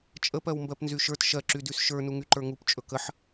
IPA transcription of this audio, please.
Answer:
t͡ʃʼ ə p ɜ w m b ɜ p n z y ʃ ə˞ t ʃ ɜ ǁ y d y s ʃ ə˞ n u ŋ y ǃ ə˞ ŋ u p t͡ʃʼ ɵ k ə ħ

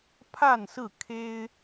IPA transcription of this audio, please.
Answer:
pʰ a˥˨ n s ɹ̩˥˨ kʰ e˦ ɪ̯

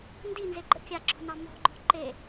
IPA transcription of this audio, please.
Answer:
n d i n z e ɡ͡ǃ ə̰ kʲ a ǁ ɔ̤ n ɑ m ɔ̤ ŋ͡ǃ ɔ̤ ǃ e

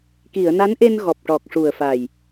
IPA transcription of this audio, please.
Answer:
k i˨˩˨ ə̯ n a˧˥ n ʔ e˧ n ɣ ɔ˨˩ p̚ ʈ ɔ˨˩ k̚ ʂ u˨˩ ə̯ f a˨˩ j

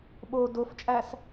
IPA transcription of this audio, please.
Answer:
ɓ o d o f t͡ʃʼ æ s

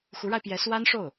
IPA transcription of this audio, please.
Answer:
x u˧˥ ɻ a˧ ɪ̯ p j ɛ˧˥ s w a˥ n ʂ o˥˩ ʊ̯

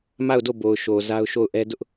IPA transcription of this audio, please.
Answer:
m a˦˨ ʊ̯ d o˦˨ b o˨ ʊ̯ ʃ o˨ z a˦ ʊ̯ ʃ o˦˨ ʊ̯ ʔ ɛ˦ d ʊ˦ ʔ

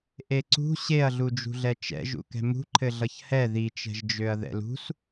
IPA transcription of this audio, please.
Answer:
ʔ e ǀ ṳ ɕ e ɐ̯ ɮ u d͡ʒ ṳ ɮ ɛ t͡ʃ ɛ̰ ʒ ṵ k ɛ̤ m ṳ ǃʰ ɘ ɮ ʌ ç h ɛ ð i t͡ʃ ɛ̤ ʒ d͡ʒ ø ɐ̯ ð ɛ̰ l ṳ s

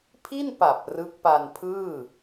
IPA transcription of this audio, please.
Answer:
pʰ i˥˩ n p a˨˩ p̚ r ɯ˦˥ k̚ p a˧ n pʰ ɯː˥˩

